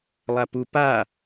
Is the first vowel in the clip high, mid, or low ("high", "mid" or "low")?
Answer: low